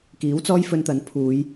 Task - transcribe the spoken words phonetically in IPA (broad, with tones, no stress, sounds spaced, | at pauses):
k iː˨˥ w t͡s ɔː˥ j f ɵ˧ n t̪ ɐ˨˥ n pʰ uː˨˧ j